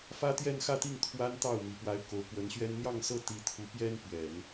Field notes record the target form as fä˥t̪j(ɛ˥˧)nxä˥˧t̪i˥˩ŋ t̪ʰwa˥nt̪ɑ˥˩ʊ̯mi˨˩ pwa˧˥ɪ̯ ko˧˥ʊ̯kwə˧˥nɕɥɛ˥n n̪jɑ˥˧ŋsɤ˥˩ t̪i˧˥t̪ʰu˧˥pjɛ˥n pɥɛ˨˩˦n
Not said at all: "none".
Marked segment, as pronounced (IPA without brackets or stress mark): ɛ˥˧